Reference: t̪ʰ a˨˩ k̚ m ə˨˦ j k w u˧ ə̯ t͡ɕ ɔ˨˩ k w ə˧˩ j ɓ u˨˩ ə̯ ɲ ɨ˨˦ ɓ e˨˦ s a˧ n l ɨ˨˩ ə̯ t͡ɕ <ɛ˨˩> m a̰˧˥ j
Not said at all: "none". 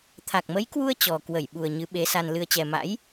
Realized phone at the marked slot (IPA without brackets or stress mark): ɛ˨˩